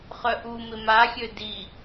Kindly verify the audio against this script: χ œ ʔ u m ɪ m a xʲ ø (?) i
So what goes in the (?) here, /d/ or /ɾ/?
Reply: d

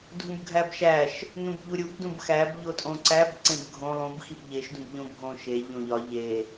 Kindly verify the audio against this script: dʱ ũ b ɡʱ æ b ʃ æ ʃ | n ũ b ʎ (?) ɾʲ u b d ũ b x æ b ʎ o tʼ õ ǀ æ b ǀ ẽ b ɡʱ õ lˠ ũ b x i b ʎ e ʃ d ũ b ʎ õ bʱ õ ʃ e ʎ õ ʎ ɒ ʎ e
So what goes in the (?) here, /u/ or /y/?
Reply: u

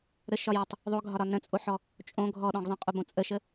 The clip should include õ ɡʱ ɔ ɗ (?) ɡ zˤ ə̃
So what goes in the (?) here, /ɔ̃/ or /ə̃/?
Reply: ɔ̃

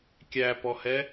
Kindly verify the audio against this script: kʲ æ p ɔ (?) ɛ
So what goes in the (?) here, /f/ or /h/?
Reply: h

